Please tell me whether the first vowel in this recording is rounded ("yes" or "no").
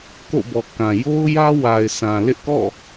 yes